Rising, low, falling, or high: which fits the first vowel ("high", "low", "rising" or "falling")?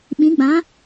rising